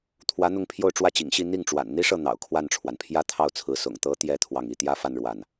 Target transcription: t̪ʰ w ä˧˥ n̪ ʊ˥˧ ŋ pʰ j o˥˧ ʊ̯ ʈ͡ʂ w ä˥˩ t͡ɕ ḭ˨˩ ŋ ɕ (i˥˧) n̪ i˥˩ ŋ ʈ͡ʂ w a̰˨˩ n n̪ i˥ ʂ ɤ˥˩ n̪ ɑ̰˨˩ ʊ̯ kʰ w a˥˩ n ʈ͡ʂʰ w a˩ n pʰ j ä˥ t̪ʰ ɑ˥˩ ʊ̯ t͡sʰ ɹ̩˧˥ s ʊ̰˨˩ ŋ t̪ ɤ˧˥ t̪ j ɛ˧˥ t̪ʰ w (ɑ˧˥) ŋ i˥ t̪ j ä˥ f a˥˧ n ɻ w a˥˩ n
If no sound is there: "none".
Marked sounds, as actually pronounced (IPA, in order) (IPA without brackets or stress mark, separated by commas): i˥˧, ɑ˥˩